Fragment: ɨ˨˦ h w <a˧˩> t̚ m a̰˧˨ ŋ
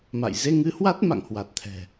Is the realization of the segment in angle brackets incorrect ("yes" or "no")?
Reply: yes